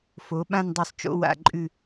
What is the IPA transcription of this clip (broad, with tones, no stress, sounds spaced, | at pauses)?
f o˩˧ ɓ ã˥˧ n dˤ ʉ˧˩ sˤ t͡ʃ o̰˧ w a̰˧˩ ǃʼ ʉ˧˩